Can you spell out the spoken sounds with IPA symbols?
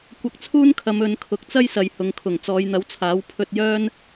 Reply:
kʷ ɐ˧ k̚ t͡sʰ uː˥ n kʰ ɐ˨˧ m ɵ˨˧ n kʰ ʊ˨˥ k̚ t͡s ɐ˥ j s ɐ˨ j h ʊ˨˧ ŋ kʰ ʊ˨˩ ŋ t͡s ɔː˨˧ j n̪ ɐ˨˥ w t͡sʰ aː˨˥ w pʰ ɵ˧ t̚ j œː˥ n

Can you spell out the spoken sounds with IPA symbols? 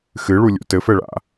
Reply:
x ɨ ɭ u lʲ ṵ t ɘ f ɛ ɭ a̰

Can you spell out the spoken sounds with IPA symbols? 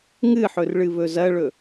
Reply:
ŋ ɨ ħ ɵ r ɭ ɨ β ɵ z ɐ ɭ ɵ

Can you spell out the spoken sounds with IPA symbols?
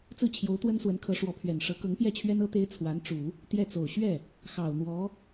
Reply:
t͡s ɹ̩˥˩ t͡ɕʰ j o˧˥ ʊ̯ t̪ w ə˥ n s w ə˧˥ n kʰ ɤ˧˥ ʂ w ɔ˧˥ pʰ ɥ ɛ˨˩ n ʂ ɤ˧˥ k ɤ˧˥ ŋ p j ɛ˥˩ t͡ɕʰ ɥ ɛ˥ n ɤ˥ t̪ e˥ ɪ̯ t͡sʰ w a˧˥ n ʈ͡ʂ u˨˩˦ | t̪ j ɛ˥˩ t͡s o˨˩ ʊ̯ ɕ ɥ ɛ˥˩ | x ɑ˨˩ ʊ̯ n̪ w ɔ˧˥

